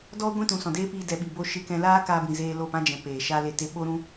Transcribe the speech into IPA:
dɔ˦ ɡʷĩ˦tũ˨sɔ̃˨deː˦ pi˧dɛ˨ɓi˨bo˧ ʃɨ˧kɛ̃˧ laː˦kaː˧bĩ˨ zeː˧lo˦˨pã˦ d͡ʒɛ̃˧peː˨ ʃa˦le˦˨te˦ ɓo˦ɾũ˦

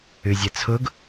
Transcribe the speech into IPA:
ʉzʲɛt͡sʰʊɡ

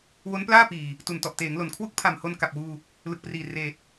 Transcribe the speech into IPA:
wo˦˥nplaː˥˩ piː˨˩ | tu˨˩ntɔ˨˩ʔteː˩˦ŋlo˨˩n kʰwu˥˩k̚pʰa˨˩mho˧n ka˨˩p̚wuː˧ | lɯ˨˩k̚priː˨˩ reː˨˩t̚

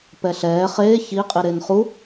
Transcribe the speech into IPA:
pɛɬɛː χeː çiqʼi ɾenχu

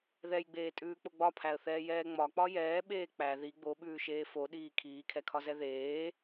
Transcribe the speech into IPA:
ðɛjɡ͡beːtʼʉːk͡po ɡ͡bɒpʰæə̯θɛːjɛː ŋ͡mɒk͡pɒ jɛːɓeː k͡pæ ði ɡ͡boɓʉːʃeː foɗiː kʰiːkʰɛkʰɒzɛ ðeː

